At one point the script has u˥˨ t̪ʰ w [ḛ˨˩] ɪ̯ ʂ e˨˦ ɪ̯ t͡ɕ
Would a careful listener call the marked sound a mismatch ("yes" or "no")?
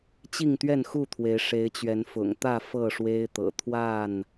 yes